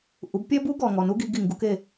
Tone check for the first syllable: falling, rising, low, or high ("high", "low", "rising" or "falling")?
rising